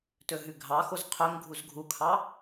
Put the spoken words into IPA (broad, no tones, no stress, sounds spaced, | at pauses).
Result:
t ɵ ɦ ʉ ɡʱ ɑ x o z qʰ ɵ ŋ ɡʱ u z ɡʱ u kʰ ɑ